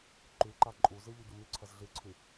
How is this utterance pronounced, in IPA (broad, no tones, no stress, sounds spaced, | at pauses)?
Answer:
ǃ ʉ ǃ a ǃʼ u z ɨ ʎ u ɟ o m ʉ ǀʰ ɐ z ɮ ɨ ǀʰ ʉ